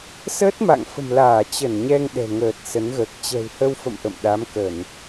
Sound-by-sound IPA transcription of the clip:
s əː˦˥ t̚ m a̰˧˨ ŋ f ə̤˨˩ m l aː˧˩ t͡ɕ ə˧˩ n ɲ ɛ˧ ŋ ɗ ɛ̤˨˩ ŋ əː˨˩ t̚ s ə˨˦ n ɣ əː˨˩ k̚ t͡ɕ ɛ̤˨˩ w h ə˧ w f ə̰˧˨ m ʔ ə̰˧˨ m ɗ a˨˦ m k ə˧˩˨ n

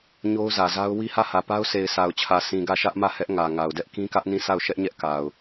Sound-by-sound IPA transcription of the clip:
ɲ o˦ ʊ̯ z ä˨ z a˦ ʊ̯ w i˦ h ä˦˨ h ä˨ p a˦ ʊ̯ sʰ e˨ ɪ̯ sʰ a˨ ʊ̯ t͡ɕʰ ä˨ s ĩ˨ ɡ ä˦˨ ʃ ä˦ ʔ m ä˦˨ h ɛ˦ ʔ ŋ ä˨ ŋ a˨ ʊ̯ d ɛ˦ ʔ k ĩ˦ k ä˦ ʔ n ĩ˦˨ s a˦˨ ʊ̯ ʃ ɛ˦ ʔ ɲ ɛ˦ ʔ k a˨ ʊ̯

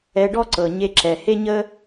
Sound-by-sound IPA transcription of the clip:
ɛ˧ ɖ ɔ˥ ǀ ɤ˩ ɲ e˧ ǁ ɛ˩ h e˥ ɲ ə˥

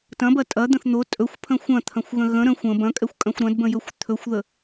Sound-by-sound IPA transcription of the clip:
t ɐ̃ b ɐ tʼ ɐ d̪ ə̃ θ n̪ o tʼ ɵ xʷ pʰ ə̃ xʷ ɐ̃ t̪ʰ ɐ̃ xʷ ɣ ə̃ ɣ ə̃ ɾ ə̃ xʷ ə̃ b ɐ̃ kʼ ɛ xʷ kʼ ɐ̃ xʷ ɾ ɐ̃ d b ə̃ j ɵ xʷ t̪ʰ ɵ xʷ ð ə

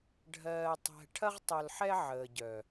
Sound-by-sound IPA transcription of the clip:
ɖʱ ɜː˨ tˤ ɛ̤˨ ʈʰ ɐ˦ ʁ tˤ o˨ l ħ ɛ˦ ʕ əː˨ ɟ œ˨

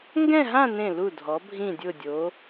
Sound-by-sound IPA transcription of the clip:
ŋ ɡ ɛ̃˥˧ ɦ ã˥˧ n ẽ˧˩ l u˧˩ dʱ ɔ˩˧ bʱ ĩ˧˩ dʲ ʊ˧˩ dʲ o˩˧

